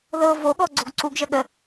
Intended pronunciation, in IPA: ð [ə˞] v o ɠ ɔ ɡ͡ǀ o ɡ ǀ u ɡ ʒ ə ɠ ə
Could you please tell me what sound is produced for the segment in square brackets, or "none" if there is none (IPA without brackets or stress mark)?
ɤ